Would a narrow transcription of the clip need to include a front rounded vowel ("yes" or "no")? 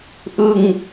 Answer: no